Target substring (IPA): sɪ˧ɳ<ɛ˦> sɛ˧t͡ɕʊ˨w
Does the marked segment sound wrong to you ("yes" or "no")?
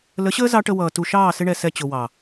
yes